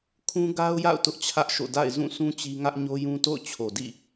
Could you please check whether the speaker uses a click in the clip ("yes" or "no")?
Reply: no